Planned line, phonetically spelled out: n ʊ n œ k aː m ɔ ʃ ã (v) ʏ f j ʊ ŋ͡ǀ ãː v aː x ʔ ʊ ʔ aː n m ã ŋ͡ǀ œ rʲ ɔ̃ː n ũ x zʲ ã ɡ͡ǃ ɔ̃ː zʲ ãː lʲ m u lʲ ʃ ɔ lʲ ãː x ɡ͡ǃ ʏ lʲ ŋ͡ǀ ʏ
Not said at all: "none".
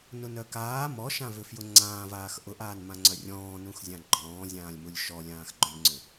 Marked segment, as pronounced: v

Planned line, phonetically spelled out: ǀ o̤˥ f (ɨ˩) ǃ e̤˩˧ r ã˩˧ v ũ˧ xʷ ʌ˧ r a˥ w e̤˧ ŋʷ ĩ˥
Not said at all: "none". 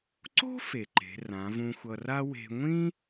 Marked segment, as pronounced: e˩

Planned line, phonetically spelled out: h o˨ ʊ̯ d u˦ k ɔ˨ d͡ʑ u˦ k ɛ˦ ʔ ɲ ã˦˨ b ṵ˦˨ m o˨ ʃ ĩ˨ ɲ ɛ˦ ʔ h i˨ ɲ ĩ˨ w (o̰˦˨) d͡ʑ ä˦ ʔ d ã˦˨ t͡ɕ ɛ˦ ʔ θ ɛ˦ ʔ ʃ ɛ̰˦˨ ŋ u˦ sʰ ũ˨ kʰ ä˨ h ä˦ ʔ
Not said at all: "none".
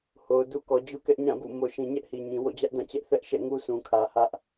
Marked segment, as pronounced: o̰˦˨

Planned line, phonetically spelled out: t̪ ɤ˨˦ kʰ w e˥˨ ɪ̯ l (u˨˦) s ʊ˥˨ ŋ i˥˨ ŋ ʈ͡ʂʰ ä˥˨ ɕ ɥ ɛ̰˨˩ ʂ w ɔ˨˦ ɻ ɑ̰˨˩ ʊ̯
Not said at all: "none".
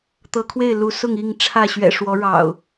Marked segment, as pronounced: u˨˦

